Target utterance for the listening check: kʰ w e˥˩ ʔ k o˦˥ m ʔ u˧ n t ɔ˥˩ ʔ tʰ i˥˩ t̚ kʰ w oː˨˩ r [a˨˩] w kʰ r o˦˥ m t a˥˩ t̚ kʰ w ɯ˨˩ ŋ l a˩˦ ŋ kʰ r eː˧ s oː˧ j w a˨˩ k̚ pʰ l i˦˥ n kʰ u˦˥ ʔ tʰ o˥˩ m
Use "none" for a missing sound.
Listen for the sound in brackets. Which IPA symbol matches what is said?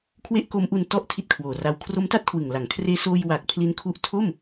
a˧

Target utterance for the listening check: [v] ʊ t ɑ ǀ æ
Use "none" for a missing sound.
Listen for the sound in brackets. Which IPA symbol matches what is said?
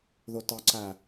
ð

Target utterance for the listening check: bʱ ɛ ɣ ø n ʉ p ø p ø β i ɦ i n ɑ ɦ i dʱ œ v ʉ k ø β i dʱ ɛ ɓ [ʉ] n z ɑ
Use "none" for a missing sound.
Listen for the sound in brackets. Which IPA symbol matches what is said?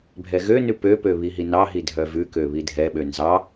ø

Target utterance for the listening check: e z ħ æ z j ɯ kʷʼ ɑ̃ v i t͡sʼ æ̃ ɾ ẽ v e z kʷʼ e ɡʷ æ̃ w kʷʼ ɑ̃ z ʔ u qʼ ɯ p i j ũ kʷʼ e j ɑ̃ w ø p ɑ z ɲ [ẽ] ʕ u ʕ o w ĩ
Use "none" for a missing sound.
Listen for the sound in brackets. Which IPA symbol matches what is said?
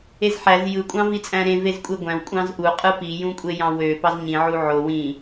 ĩ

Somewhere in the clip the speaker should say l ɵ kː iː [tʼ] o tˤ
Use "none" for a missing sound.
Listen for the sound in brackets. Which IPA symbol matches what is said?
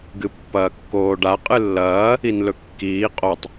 qʼ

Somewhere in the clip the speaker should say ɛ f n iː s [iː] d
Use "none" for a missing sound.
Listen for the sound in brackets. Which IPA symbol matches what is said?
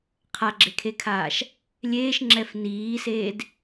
eː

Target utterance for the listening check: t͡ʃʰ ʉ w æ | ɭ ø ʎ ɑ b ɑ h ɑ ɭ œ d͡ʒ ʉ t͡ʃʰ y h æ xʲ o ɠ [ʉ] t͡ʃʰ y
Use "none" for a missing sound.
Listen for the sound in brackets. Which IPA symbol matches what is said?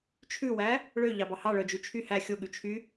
ʉ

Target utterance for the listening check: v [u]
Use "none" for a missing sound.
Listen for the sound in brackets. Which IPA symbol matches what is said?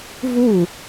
u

